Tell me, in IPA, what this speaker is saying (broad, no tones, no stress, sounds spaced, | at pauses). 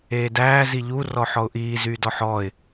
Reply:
eː d æː z i ʎ u r ɔ ħ ɔ ʊ̯ ʔ iː z yː d ɔ ħ ɔː ɪ̯